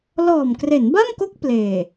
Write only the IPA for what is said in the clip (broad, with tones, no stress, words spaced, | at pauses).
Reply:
lɔː˨˩mkre˩˦nba˥˩mko˦˥k̚ pleː˨˩